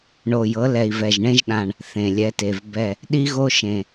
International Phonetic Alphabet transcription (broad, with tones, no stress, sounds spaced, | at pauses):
ɳ o˨˩ j ɤ˩˧ l ɛ˨˩ i̯ v ɛ˨˩ ʒ ɳ ẽ˧ ʒ ɗ ã˨˩ ɳ | θ ẽ˨˩ lʲ ɛ˩˧ t e˨˩ v b ɛ˨˩ | ɗ i˧ ɣ o˧ ʃ ẽ˨˩